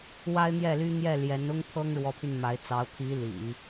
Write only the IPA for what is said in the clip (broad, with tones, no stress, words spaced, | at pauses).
wa˥ɪ̯n̪jɛ˥˩ly˥ n̪jɛ˥˩ ljɛ˧˥nʊ˥ŋ pʰɤ˥ŋɻwɔ˧˥pʰy˧n ma˧˥ɪ̯t͡sɑ˧˥ʊ̯ t̪ʰi˧˥ lḭ˨˩˦